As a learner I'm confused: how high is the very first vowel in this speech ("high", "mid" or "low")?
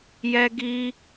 mid